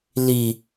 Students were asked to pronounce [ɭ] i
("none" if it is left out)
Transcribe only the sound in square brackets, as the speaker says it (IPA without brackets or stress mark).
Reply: l